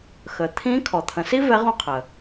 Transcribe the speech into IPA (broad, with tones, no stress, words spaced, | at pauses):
xə˩˧t̪ʰĩ˧˥ kʰɔ˩t̪ʰə̃˩˧si˥ vɛ˧˥ʁũ˧˥ qʰə˩